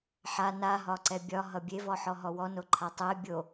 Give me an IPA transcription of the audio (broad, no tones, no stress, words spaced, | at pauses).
ħa na ɦɒǀɛbʲɒ ɦʌbʲe vɔħɔɦɔwɔ noǃʰatˤɛɪ̯ bʲo